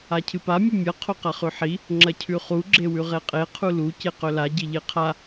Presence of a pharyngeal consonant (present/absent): present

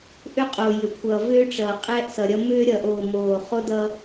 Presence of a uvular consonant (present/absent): present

